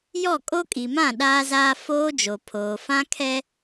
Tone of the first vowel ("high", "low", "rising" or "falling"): falling